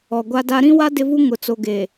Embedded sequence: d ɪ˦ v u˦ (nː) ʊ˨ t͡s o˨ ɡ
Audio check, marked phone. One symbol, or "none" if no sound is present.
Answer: ŋ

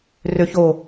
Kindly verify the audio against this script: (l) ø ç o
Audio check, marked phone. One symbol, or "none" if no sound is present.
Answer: r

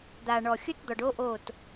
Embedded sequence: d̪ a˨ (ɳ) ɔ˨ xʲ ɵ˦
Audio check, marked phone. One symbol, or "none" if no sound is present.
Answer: ɳ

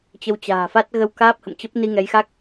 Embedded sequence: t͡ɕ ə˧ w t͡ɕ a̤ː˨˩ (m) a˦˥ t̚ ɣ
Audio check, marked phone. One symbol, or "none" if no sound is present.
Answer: f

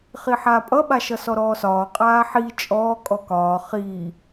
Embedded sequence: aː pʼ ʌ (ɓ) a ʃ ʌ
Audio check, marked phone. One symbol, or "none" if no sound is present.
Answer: ɓ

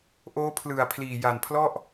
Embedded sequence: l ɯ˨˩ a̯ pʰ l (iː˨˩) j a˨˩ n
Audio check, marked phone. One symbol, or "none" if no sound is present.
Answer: iː˨˩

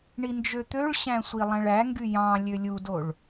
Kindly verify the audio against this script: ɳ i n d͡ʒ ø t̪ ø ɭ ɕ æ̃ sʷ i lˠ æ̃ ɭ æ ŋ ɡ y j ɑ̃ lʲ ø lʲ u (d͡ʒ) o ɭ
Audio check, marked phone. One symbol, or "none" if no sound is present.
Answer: d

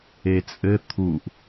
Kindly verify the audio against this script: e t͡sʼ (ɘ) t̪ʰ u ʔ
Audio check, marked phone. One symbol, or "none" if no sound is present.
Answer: ɘ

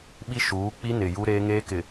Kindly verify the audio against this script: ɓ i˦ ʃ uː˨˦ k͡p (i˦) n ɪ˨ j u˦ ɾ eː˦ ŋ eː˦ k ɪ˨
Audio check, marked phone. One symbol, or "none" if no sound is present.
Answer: i˦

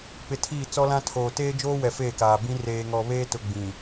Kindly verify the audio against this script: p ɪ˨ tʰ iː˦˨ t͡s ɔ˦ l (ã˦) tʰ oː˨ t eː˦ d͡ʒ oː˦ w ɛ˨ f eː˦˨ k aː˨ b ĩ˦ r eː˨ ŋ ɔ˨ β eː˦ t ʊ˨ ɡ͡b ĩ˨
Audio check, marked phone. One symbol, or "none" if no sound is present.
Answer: ã˦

